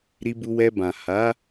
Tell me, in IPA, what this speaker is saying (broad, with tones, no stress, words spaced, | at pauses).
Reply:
ɾi˧bu˧wɛ˧bã˨ ha˨˦